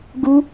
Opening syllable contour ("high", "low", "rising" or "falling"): high